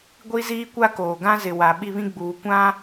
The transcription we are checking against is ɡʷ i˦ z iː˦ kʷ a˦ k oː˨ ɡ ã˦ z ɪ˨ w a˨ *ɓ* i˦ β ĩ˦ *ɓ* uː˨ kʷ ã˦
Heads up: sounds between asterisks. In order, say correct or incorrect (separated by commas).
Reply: correct, incorrect